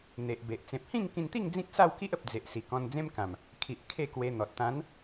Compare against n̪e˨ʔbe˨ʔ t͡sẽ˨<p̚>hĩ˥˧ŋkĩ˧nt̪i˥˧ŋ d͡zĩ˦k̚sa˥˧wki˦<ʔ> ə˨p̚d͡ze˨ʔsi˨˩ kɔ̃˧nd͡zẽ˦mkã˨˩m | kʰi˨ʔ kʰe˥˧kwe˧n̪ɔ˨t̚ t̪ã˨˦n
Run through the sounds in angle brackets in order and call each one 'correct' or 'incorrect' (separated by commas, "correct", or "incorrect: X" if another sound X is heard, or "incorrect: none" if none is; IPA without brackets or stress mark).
correct, correct